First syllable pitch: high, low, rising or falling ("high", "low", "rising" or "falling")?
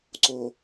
low